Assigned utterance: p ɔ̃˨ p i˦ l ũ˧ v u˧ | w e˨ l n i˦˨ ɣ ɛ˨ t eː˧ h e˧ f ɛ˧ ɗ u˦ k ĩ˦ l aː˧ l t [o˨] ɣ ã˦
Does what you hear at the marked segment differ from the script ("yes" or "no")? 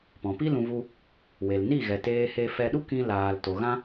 no